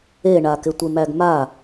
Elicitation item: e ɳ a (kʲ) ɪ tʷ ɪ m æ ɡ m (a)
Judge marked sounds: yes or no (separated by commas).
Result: no, yes